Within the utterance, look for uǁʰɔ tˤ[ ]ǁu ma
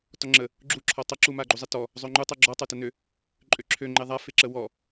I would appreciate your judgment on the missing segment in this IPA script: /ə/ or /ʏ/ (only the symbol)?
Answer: ə